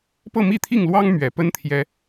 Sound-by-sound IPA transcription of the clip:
p ɤ˥˨ m i˥˨ t̪ʰ i˥˨ ŋ l w ɑ˦ ŋ m ɥ ɛ˨˩ p ə˦ n t̪ʰ j ɛ˨˦

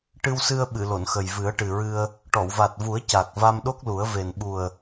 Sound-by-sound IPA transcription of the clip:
ʈ ɨ˧ w s ɨ˧ ə̯ ɓ ɨ˨˩˨ l o˨˩˨ n x ə˨˩ j v ɨ˨˩˦ ə̯ ʈ ɨ˨˩ ɹ ɨ˧ ə̯ | ʈ ɔ˨˩˨ w v a˨˩ t̚ v u˨˩˦ ə̯ c a˨˩ k̚ v a˧ m ɗ o˦˥ k̚ l u˨˩˦ ə̯ v e˨˩ n ɓ u˨˩ ə̯

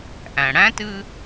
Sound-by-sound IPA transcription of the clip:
ʔ æ̃˩ ɽ æ̃˥ t ɨ˦

